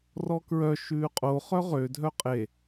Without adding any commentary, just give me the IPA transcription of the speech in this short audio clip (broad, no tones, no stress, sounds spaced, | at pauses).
r ɔ k ɹ œ ʃ ʉː qʼ o χ œ ʁ ø dʱ œ qʼ e